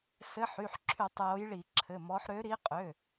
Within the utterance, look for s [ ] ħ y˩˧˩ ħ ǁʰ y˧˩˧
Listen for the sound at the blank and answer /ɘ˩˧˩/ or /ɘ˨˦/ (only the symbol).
ɘ˨˦